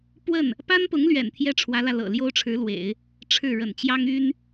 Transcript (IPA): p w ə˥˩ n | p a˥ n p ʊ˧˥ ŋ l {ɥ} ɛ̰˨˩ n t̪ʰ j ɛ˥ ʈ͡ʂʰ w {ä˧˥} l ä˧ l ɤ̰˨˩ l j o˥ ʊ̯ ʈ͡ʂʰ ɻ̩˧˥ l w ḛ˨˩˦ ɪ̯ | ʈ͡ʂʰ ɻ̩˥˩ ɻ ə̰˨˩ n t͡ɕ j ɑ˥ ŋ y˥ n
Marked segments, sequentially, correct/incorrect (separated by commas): correct, correct